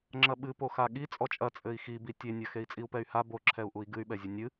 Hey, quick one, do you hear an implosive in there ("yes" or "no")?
yes